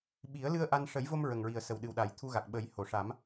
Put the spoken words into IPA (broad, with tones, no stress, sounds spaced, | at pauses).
ɓ i˨˩˦ ə̯ l ɨ˧ ə̯ ʔ a˧ n ʂ ə˨˩˦ j v o˧ m ɹ ə˨˩ ŋ ɹ i˨˩ ə̯ s ə˨˩ w ɗ ɨ˨˩ w ɗ a˨˩˦ j t̪ʰ u˧ ɣ a˨˩ k̚ ɓ ə˨˩˦ j h o˨˩˨ ʂ a˨˩˦ m